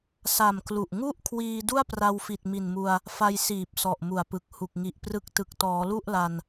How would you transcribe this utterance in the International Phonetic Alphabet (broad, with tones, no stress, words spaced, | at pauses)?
sa˨˩m klu˨˩ʔ ŋu˥˩ʔkʰwiː˧ du˥˩a̯pra˧w fi˨˩t̚mi˨˩nmu˧a̯ | fa˧jsiː˨˩p̚ sɔ˨˩ʔmu˨˩a̯pɯ˨˩k̚ hu˨˩k̚ ŋi˨˩ʔprɯ˦˥k̚tɯ˨˩k̚ tɔː˩˦lu˥˩ʔla˧n